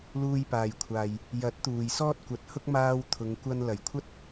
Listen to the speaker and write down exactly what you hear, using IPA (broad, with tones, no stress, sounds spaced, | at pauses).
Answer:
l uː˧ j p aː˨ j kʷʰ aː˨ j | j ɐ˨˥ t̚ t̪ uː˨ j s ɔː˥ t̚ kʷ ɐ˨˥ t̚ h ʊ˥ k̚ m aː˧ w t̪ʰ ʊ˨˧ ŋ kʷ ɐ˧ n l ɐ˨˩ j kʷʰ ɐ˥ t̚